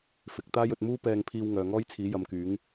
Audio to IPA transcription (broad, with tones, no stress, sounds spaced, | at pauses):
f ɪ˨˥ k̚ t̪ aː˥ j ɵ˧ t̚ m uː˥ p ɛː˧ ŋ pʰ iː˧ w ŋ œː˨ ŋ ɔː˥ j t͡sʰ iː˨˥ j ɐ˨˧ m k yː˨˥ ŋ